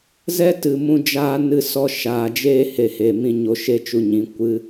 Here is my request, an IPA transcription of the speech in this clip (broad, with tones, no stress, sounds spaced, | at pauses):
z ɛ˦ t ɨ˨ m ũ˧ d͡ʒ aː˦ n ɨ˧ s ɔ˧ ʃ aː˨ d͡ʒ eː˦ h e˧ h eː˨ m ĩ˦ ɲ o˧ ʃ e˦ t͡ʃ u˧ ɲ ĩ˨˦ kʷ ɨ˦